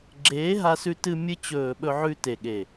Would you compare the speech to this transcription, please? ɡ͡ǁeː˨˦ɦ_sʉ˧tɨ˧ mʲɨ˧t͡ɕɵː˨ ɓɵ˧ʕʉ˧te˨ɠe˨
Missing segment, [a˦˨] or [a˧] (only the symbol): a˧